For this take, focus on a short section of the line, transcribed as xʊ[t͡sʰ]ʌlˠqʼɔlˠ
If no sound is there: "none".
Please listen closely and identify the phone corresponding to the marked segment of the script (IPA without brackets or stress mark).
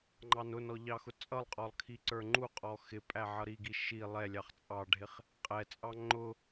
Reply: t͡sʼ